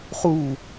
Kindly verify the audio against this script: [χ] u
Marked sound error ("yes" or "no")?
no